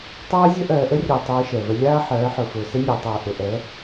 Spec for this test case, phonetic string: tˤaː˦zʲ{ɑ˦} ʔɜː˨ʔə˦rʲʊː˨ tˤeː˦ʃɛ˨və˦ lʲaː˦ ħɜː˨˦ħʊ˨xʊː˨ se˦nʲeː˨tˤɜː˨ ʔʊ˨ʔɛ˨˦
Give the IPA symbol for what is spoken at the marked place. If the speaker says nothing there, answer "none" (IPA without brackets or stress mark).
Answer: ə˦